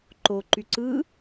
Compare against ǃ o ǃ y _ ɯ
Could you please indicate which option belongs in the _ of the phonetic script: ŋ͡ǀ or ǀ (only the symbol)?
ǀ